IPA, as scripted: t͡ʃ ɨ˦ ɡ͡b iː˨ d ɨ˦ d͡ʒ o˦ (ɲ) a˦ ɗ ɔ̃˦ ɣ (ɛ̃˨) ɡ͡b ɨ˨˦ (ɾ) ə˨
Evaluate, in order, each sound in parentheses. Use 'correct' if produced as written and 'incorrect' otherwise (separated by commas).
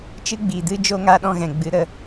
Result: incorrect, correct, correct